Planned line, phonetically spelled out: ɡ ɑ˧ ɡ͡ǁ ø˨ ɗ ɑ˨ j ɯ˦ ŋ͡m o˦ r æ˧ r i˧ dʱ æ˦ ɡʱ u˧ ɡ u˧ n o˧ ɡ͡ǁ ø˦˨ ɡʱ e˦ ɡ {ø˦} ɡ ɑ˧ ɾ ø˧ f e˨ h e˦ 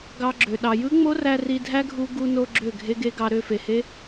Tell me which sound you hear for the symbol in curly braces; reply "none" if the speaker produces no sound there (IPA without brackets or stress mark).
e˦